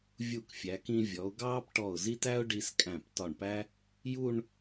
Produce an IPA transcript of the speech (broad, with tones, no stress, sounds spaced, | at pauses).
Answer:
vʲ u˧˩ k fʲ æ˩˧ k ĩ˧ vʲ ɔ˩˧ ʊ̯ ɡ ɑː˥ p ʈ ɔ˧˩ ʊ̯ z i˥ t æ˥ ʊ̯ ɖ i˧ s kʼ æ̃˧˩ p t ɒ˧˩ ɳ p æ˥ | j u˥˧ ɳ